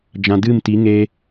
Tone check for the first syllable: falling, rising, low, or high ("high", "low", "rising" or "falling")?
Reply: low